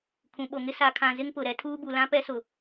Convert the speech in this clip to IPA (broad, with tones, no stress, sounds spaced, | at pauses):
kʰ ũ˨ ɓ o˨ ŋ ɪ˦ s a˨ kʰ ã˨ z ɪ˦ ŋ p ʊ˨ ɾ ɛ˦ tʰ uː˦ b u˨ l ã˦ p ɛ˦ s ʊ˨